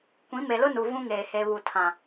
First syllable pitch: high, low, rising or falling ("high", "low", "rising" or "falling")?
rising